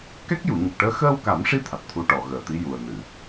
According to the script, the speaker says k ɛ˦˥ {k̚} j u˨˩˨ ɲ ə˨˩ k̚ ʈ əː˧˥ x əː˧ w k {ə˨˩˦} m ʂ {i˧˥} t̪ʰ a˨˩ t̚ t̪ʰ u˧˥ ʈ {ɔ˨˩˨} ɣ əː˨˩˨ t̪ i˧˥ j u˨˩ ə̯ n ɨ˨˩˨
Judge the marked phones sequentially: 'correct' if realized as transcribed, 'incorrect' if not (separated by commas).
correct, incorrect, correct, correct